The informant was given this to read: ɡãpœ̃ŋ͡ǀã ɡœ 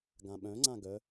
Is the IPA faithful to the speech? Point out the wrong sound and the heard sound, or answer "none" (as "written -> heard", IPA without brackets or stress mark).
p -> ɓ